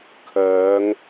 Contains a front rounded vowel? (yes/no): yes